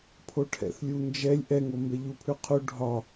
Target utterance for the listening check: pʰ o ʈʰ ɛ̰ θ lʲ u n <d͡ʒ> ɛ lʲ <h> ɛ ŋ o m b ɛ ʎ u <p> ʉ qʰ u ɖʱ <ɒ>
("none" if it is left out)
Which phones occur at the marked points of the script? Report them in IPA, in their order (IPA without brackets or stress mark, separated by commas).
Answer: d͡ʒ, ʔ, pʰ, ɒ